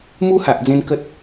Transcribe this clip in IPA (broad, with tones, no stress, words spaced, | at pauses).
mu˦ha˨ʔd͡zẽ˧n kə˦t̚